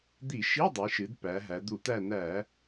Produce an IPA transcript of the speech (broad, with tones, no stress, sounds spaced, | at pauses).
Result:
d̪ i˧˩˧ ʃ i˧˥˧ dˤ i˩˧ ʃ ɨ˩˧ d p æ˩˧ ɦ æ˩˧ d̪ u˧˩˧ t̪ æ˦˨ n̪ æ˧˩˧